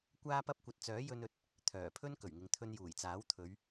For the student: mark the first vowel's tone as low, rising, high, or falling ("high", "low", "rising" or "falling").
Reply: high